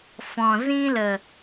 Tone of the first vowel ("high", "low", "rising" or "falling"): low